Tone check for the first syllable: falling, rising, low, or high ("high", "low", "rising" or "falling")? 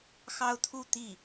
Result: high